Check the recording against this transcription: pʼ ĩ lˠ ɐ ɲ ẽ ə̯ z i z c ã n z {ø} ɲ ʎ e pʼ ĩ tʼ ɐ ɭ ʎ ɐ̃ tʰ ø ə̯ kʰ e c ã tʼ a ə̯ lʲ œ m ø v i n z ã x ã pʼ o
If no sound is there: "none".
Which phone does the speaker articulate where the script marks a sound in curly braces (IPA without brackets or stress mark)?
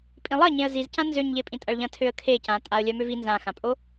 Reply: ø